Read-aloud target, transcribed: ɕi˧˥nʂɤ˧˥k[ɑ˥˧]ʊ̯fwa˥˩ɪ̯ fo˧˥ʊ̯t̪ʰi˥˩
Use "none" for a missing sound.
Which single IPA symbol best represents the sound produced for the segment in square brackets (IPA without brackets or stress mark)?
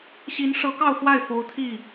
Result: ɑ˥˧